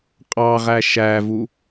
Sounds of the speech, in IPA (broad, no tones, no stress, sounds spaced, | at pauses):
qʼ ɑ ʁ æ ʃ æ v u